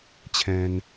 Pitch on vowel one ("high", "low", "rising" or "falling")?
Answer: low